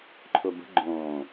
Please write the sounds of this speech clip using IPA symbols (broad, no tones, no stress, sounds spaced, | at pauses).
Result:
ǃʰ ʊ b ə̤ ɡ͡ǃ õː